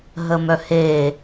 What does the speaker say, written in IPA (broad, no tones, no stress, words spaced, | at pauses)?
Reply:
ɦəmœhe